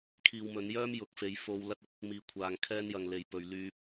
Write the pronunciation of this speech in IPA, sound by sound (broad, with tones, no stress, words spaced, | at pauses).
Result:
kʰiː˨wmɵ˨˧n jœː˥mjʊ˨˥k̚ fe˨˧jfo˧w lɐ˥t̚ʊ˥k̚ | miː˧kʷʰaː˧ŋkʰɛː˥n jɐ˨ŋle˨j pɵ˧ɥ lyː˧p̚